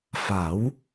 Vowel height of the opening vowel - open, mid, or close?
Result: open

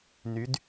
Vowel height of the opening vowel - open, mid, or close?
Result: close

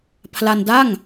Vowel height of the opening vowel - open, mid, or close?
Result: open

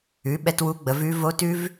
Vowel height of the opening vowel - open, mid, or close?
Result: close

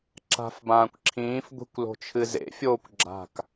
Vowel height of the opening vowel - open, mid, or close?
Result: open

